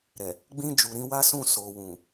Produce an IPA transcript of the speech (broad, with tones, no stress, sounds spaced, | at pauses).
ɾ ɛ˨ | ɡ͡b ĩ˧ d͡ʒ u˨ ɾ ĩ˧ w a˦ s ũ˦˨ s o˨ w ũ˨